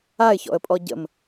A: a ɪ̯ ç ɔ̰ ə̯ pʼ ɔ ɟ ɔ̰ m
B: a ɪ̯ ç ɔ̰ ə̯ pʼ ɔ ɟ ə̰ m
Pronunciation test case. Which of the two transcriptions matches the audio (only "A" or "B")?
B